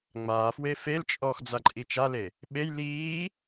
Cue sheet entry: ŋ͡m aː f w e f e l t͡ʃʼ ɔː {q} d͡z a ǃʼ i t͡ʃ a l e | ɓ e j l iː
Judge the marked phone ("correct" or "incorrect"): incorrect